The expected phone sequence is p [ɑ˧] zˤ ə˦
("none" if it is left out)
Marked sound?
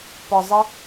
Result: ɒ˧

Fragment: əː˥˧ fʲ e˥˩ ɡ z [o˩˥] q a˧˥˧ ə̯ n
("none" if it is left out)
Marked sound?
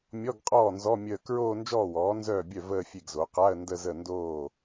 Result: o˩˥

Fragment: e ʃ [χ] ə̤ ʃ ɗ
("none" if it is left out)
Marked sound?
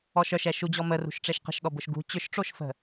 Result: q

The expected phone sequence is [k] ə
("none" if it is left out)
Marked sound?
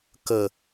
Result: k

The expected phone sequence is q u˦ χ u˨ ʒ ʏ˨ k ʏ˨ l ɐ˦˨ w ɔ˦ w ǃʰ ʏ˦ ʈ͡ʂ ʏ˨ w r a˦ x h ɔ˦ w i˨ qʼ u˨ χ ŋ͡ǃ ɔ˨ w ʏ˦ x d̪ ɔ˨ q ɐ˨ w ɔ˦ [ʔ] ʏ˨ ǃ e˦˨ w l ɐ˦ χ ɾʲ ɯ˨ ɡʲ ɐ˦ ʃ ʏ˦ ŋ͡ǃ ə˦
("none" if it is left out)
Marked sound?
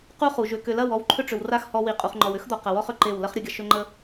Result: χ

